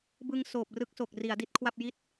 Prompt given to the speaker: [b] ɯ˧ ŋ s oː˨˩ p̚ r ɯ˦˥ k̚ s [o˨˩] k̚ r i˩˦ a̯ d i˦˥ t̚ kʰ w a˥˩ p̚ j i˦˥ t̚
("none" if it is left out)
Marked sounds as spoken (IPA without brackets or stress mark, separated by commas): b, o˨˩